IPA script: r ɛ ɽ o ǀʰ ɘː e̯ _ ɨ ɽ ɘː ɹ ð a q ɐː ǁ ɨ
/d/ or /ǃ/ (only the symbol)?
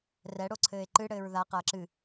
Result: ǃ